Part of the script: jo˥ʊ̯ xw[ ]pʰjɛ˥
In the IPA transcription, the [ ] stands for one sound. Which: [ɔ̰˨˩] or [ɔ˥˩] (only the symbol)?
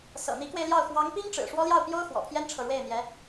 ɔ̰˨˩